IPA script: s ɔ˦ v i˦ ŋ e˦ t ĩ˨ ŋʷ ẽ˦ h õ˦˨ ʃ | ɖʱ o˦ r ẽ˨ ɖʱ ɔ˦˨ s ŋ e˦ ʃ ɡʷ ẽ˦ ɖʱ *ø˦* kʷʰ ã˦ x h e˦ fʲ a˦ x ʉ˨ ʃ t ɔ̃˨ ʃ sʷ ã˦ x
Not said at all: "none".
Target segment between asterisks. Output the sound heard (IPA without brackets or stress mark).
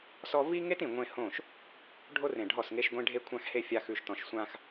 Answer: e˦